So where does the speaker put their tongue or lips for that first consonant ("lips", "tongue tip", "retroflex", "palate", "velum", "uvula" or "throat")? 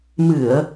lips